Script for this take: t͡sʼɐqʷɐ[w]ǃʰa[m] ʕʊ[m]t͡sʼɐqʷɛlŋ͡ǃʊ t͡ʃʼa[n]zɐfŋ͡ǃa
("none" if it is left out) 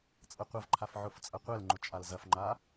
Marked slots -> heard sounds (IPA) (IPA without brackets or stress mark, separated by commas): v, f, f, l